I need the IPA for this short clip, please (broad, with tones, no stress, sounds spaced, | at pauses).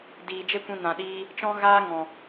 d iː˨ d͡ʒ e˦ kʷ ĩ˧ n ã˨ ɗ iː˧ | t͡ʃ ɔ̃˦ ɣ aː˦ ŋ ɔ̃˨